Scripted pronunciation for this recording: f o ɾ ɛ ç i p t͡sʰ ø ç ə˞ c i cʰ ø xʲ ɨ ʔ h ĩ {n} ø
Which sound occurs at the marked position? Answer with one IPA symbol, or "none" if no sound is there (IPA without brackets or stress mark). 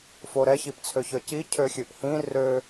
r